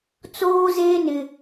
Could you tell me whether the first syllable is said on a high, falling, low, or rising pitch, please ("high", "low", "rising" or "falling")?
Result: high